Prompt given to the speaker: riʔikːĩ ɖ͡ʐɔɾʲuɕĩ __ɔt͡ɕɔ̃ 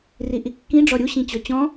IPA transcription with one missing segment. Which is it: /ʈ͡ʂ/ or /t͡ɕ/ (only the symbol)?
t͡ɕ